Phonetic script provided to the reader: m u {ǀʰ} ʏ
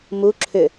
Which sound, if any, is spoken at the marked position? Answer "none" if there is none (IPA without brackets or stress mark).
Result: ǁʰ